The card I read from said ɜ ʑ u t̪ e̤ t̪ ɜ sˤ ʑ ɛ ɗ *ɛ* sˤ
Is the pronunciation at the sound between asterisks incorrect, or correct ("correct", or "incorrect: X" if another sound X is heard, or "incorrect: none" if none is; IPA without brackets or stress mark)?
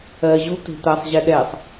correct